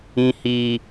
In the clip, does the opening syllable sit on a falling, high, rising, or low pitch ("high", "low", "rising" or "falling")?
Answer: low